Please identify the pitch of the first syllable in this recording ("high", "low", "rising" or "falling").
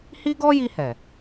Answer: high